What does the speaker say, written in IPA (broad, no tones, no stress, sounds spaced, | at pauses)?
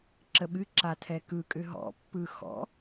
ǁ ə ɓ ɨ ǁ a tʰ ɛ k ɯ kʼ ʏ ɦ ɔ̰ pː ɯ x ɔ̰